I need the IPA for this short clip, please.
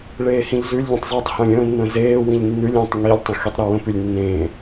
ɭ eː h ĩ ʎ z ʉ lʲ ʎ ə̃ tˤ zˤ i tˤ h ə̃ː lʲ ə̃ː nː ə̃ː z eː w ĩ ʎ nː ʉ lʲ ẽː tˤ ŋ i lʲ tˤ ə̃ x i tˤ ɾ ʉ w ə̃ p ʉ lʲ nː ẽː

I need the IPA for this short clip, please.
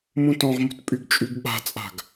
m ũ t ɔ̃ ʁ m ṳ t pʼ y ɡ t͡ʃʼ y ɡ ɓ a̤ t͡sʼ a̤ ɡ

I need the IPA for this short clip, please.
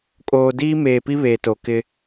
kʼ oː˨ d iː˦ m eː˨ p i˦ β e˨ t o˨ k ɪ˦

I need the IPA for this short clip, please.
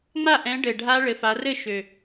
ŋ͡m a˥˩ ʔ ɛ̃˨˦ ɖ ɘ˨˩ ɖʱ a˦˥ ɭ ɘ˨˦ f a˨˦ r ɘ˥˧ ʃ ø˨˩

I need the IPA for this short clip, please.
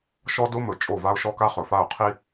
ʃ ɔ˦ d o˦ m ɵ˨ t͡ʃʼ o˦˨ v a˦ ʊ̯ ʃ ɔ˦ k a˦ χ ɵ˨ f a˦˨ ʊ̯ qʰ i˦

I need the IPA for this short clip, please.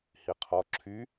h i qʰ ɔ ǁʰ y

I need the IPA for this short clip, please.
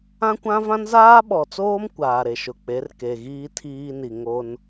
ã˦ kʷ ã˦ v ã˦ n z aː˦ ɓ ɔ˨ t͡s oː˦ m kʷ aː˨ ɾ e˨ ʃ ʊ˨ k͡p e˨˦ r k e˨ ɣ iː˦ tʰ iː˦ n i˨ ŋ o˦ n

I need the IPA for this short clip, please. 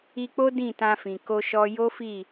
i˧ k͡p o˦ d ĩ˦˨ t ã˧ f ĩ˨ k o˧ ʃ ɔ˧ j o˦ f i˦˨

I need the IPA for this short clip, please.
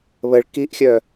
β ə ɭ k i ʔ xʲ œ

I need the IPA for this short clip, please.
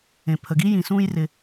ẽ˩ pʰ ə˩ ɡ i˥ j ĩ˩ s ũː˧ j r ɪ˩

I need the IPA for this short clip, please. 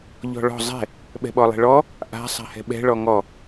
ʎ ɔ̤ ɭ ɔ̤ zˤ ɛ̤ | ɓ ɛ̤ ɓ ɔ lˠ ɛ̤ ɭ ɔ | ʔ a̤ sˤ a̤ h ɛ̤ ɓ ɛ̤ ɭ ɔ ŋ ɔ

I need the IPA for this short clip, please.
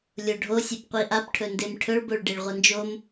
lʲ o ɖʱ o sʲ e p qʷ i ʔ a p ʈʰ ɵ n d e m ʈʰ ɵ ɭ b o ɭ ɖ e ɭ ʁʷ ɐ n d͡ʒ o m

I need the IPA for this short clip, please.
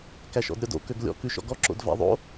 k æ ʃ ɔ̰ d ɾʲ ɔ d o̰ k ø ɡ lʲ ɔ̰ k ʉ ʃ ɔ̰ ɡ ɔ ǁ o̰ d v æ̰ ðˤ o̰

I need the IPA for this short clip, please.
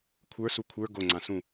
kʷʰ ə˞ s u kʷʰ ə˞ ɡ o ŋ͡ǀ ã s ũ

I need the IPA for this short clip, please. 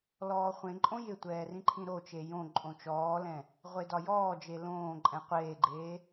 l ɔː χʷ ẽ ǃʼ õ j ɪ tʷ ɛː r ĩ ǃʰ ĩ ɾ o t͡ʃ e j õ ǃʼ õ t͡ʃ ɔː l ɛ̃ | ʁʷ e d ɒ j ɔː d͡ʒ e l õː ǃʼ ɛ̃ qʷ eː ɡ͡ǃ eː

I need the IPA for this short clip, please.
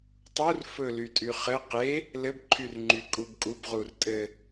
tˤ u r f ɵ l y tʼ y χ ɘ q e | l ɘ b ǃʰ y r ŋ͡ǃ y kʼ u b kʼ u b ʁ u r tʼ ɘ

